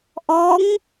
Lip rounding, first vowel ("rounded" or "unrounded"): rounded